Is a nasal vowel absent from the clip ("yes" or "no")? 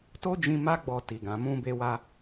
no